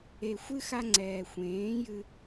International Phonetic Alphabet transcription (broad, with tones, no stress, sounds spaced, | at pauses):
e˨ xʷ ɨ˦ x a˧ ŋ͡ǀ ɛː˨ xʷ ẽː˨˦ j ɨ˧